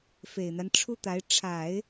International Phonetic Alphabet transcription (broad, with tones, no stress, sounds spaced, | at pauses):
f e˨˩ ɪ̯ n̪ a˦ n ʈ͡ʂʰ u˥ t̪ a˧˥ ɪ̯ ʈ͡ʂʰ a˨˩˦ ɪ̯